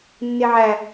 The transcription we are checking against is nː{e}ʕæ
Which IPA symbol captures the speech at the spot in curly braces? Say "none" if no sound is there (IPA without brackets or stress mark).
e